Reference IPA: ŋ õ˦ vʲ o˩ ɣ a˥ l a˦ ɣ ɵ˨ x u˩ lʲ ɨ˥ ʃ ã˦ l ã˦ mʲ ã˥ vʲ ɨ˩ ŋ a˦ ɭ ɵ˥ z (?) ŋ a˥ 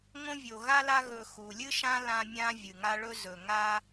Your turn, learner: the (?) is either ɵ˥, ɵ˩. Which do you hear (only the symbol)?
ɵ˩